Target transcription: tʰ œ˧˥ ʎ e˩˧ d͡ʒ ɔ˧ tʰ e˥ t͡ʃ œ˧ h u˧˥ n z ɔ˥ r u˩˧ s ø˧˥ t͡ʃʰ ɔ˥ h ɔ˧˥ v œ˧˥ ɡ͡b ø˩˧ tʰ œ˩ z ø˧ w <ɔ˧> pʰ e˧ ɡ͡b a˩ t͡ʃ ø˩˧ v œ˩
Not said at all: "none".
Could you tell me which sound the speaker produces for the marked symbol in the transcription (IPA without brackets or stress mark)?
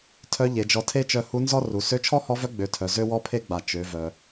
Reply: ɔ˧